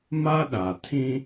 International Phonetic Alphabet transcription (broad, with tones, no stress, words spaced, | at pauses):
ma˦ɗa˨ tʰĩ˦